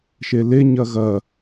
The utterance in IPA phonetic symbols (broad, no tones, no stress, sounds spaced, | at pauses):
ʃ e l e ɲ ɐ ɣ ɐ